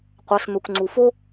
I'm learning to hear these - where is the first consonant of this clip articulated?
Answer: uvula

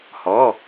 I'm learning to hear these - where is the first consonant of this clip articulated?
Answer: throat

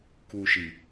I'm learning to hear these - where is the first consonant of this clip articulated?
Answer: velum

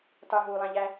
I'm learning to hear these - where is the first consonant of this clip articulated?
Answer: tongue tip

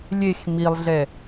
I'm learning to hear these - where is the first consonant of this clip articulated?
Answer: tongue tip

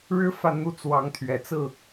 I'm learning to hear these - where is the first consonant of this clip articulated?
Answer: retroflex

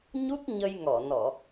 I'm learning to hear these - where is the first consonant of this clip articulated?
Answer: palate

